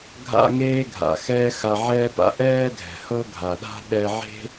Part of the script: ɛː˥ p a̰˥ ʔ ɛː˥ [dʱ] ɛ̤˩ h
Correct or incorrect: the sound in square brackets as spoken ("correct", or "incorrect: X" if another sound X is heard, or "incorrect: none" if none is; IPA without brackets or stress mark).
correct